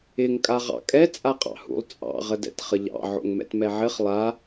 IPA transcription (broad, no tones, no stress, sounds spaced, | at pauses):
ɪ ŋ kʼ a ʁ ɑ̰ kʼ ɛ t͡sʼ a qʼ ɑ̰ h ṵ lˠ t͡sʼ ɑ̰ ʁ ə d ɛ̰ t χ ə ʎ ɑ̰ ʕ o̰ ŋ m ɛ̰ t m ɛ ʕ ɘ χ lˠ a